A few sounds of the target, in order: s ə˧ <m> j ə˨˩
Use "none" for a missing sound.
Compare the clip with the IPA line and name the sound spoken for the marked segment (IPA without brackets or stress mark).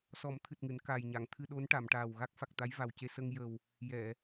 ŋ